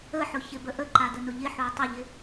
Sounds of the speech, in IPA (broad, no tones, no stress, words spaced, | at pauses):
əħʊ çɪbəʔəǃa dənʊʎɪħuɐ̯ tˤəʎɪ